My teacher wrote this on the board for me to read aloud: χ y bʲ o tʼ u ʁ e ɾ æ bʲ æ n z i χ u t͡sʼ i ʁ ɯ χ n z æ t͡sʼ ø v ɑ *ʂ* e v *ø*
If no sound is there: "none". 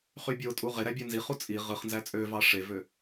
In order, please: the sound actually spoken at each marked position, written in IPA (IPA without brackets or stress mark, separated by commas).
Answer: ʂ, ø